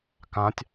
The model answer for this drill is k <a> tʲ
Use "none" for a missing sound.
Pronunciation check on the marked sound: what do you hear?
ã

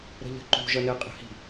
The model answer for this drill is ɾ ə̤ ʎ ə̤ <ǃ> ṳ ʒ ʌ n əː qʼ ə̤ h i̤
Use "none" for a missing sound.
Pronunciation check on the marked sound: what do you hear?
ǃ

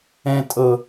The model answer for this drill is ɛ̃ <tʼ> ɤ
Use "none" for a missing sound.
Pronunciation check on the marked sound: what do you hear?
tʼ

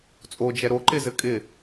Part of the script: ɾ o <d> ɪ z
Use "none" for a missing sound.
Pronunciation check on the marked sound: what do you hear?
ǃ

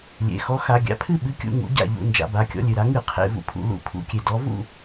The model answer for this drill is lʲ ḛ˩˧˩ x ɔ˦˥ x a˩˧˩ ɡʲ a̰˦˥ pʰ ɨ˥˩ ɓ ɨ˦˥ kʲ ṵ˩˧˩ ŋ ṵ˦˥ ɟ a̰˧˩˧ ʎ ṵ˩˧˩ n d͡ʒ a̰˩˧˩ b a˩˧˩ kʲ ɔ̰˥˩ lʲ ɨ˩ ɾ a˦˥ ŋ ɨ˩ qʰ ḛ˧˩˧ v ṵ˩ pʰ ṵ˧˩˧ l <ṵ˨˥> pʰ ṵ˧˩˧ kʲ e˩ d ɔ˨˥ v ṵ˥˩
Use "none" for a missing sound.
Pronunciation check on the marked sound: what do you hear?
ṵ˧˩˧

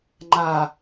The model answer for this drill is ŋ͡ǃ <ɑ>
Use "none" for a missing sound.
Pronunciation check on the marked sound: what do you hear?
a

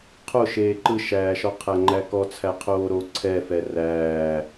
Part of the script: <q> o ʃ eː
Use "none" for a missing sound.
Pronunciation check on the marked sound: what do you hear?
qʰ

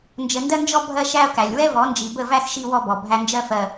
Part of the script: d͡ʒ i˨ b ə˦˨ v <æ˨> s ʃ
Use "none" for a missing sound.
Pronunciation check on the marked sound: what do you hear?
æ˦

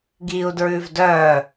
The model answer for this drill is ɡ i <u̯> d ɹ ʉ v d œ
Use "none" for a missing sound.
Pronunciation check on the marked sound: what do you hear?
u̯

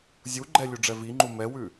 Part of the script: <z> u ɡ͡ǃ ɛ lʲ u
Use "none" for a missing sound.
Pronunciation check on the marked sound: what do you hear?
zʲ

